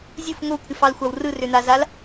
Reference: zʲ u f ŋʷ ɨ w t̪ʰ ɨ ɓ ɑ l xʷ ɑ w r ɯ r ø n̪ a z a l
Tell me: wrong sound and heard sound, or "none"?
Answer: ɓ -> f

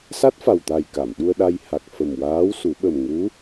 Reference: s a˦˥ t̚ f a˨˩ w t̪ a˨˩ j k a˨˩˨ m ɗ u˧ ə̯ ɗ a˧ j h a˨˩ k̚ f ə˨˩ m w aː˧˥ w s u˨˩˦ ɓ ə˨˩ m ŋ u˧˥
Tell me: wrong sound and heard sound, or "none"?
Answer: none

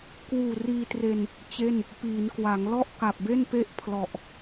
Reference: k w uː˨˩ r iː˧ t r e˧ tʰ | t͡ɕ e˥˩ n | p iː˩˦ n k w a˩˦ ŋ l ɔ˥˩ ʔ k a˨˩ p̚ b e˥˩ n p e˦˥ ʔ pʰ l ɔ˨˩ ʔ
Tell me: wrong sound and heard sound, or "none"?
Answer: tʰ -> n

